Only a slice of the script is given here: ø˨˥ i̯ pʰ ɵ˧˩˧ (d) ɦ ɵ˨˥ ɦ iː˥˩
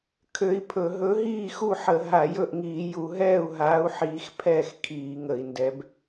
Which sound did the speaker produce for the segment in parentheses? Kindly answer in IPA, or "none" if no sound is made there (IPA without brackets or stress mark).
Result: none